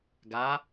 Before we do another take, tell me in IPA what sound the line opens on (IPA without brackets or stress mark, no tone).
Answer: ɡ